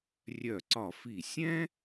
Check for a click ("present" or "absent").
present